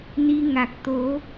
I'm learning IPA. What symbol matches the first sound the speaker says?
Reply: n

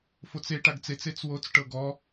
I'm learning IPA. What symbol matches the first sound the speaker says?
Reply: f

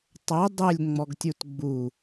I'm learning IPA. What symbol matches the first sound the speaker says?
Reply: tˤ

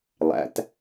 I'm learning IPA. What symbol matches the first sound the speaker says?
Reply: lˠ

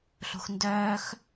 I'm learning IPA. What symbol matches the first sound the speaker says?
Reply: ɬ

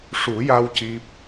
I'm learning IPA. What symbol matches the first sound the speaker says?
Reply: ʂ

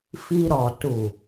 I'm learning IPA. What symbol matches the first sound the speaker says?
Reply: f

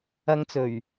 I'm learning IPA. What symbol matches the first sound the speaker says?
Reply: ɐ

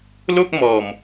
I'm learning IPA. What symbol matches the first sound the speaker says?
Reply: l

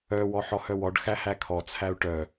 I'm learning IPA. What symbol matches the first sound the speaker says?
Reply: œ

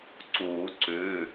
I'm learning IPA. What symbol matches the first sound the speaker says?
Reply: ǀ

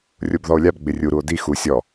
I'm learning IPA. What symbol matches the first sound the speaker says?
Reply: rʲ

